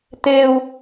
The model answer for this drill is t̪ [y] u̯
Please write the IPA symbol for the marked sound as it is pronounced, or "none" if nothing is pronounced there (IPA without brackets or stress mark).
e